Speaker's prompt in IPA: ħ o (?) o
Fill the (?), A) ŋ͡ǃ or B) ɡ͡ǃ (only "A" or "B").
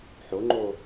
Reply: A